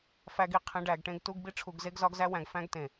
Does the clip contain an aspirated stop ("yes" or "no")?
yes